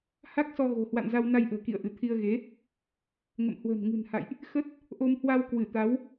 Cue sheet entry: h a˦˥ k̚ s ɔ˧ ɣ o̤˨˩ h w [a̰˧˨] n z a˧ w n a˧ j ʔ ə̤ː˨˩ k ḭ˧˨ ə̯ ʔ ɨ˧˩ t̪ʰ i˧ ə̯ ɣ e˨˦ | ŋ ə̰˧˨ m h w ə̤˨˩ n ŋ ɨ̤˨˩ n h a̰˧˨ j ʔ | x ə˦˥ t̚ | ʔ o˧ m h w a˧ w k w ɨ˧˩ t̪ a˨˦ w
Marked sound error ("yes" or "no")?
no